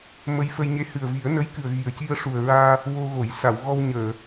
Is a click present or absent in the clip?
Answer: absent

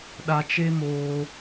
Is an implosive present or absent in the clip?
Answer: present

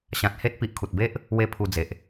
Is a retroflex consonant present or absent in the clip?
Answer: absent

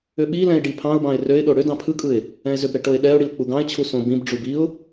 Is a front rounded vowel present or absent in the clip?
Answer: present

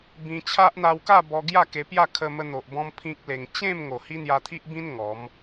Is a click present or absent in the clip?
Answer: absent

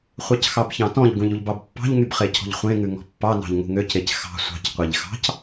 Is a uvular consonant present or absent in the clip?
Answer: present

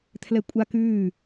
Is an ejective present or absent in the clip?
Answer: present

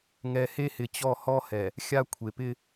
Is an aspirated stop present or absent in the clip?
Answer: present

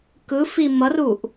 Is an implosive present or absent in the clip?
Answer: absent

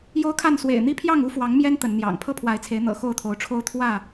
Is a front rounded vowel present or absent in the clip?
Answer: absent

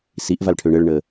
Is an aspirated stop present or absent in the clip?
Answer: present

